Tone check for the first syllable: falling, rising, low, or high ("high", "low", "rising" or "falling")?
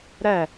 falling